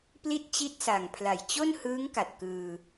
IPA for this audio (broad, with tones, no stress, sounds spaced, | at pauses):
p l i˥˩ t̚ t͡ɕ i˥˩ t̚ s a˨˩ ŋ pʰ l a˨˩ j t͡ɕ o˥˩ n h ɯː˦˥ ŋ k a˨˩ t̚ k ɯː˧